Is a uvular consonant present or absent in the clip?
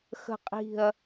present